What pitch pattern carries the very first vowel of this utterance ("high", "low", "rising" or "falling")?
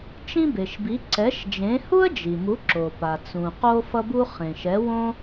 high